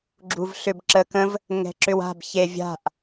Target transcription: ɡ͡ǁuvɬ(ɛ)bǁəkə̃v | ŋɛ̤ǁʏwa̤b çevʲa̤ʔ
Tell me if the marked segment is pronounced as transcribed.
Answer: no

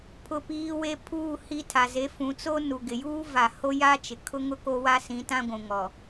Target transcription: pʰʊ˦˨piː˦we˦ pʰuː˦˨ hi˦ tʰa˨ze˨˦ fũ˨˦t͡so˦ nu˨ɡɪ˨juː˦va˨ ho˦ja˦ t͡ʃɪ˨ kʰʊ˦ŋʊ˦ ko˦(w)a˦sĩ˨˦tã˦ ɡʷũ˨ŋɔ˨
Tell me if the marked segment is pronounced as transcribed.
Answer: yes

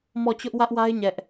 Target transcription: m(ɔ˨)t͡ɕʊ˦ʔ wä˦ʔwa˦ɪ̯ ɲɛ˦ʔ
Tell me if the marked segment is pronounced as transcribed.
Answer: no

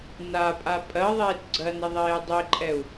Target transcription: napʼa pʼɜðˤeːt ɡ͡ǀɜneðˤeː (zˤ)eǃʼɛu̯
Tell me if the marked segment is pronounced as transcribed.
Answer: no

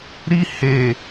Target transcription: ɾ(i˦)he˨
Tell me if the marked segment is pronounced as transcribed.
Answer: yes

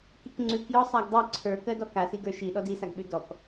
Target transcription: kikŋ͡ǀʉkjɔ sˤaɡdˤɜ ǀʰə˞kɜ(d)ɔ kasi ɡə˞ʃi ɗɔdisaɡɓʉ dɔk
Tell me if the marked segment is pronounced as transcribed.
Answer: yes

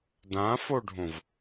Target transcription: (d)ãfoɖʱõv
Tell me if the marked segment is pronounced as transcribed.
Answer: yes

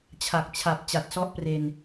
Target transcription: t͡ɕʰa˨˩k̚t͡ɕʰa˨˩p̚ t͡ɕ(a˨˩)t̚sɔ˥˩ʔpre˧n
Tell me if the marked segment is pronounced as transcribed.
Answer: yes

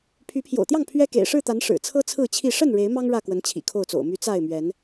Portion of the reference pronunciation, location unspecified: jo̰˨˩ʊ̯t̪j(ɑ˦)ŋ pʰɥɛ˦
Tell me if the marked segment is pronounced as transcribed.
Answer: no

